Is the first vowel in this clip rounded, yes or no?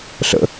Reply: no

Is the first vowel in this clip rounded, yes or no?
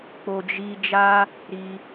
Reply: yes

